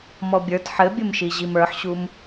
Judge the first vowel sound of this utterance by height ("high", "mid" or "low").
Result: mid